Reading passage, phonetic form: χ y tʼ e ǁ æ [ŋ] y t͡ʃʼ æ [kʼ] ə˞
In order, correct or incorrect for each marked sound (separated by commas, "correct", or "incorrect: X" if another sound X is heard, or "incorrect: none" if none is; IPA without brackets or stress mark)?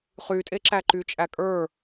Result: incorrect: ǃ, correct